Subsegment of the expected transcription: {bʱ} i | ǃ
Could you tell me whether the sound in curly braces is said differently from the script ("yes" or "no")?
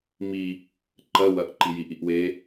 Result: yes